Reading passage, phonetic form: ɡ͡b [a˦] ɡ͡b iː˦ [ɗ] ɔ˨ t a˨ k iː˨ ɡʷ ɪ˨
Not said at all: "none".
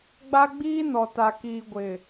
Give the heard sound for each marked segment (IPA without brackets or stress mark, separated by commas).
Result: a˦, n